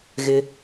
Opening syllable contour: low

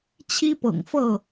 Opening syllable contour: high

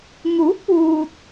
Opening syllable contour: rising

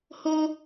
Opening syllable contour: high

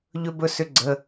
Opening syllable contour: high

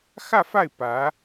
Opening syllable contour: falling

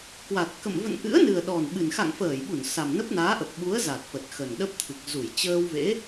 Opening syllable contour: low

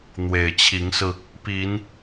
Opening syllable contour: low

